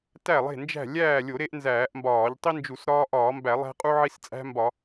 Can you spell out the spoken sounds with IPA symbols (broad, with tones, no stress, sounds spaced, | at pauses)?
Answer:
t æ˥˨ lˠ e̤˥˨ n d͡ʒ æ̤˥˨ lʲ æː˥˨ lʲ o˧˩˧ ɾ e˦ ʔ n z æː˧˩˧ ʔ m b ɒː˧˩˧ ʎ tˤ i˦ n d͡ʒ u˧˩˧ s ɾ ɒː˦ ʔ ɒː˧˩˧ m b æ˧˩˧ lˠ æ̤˦ qʼ u˦ ʕ i˦ s t͡sʼ æ̤˦ m b ɒ˧˩˧